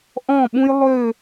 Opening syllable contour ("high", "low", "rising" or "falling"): falling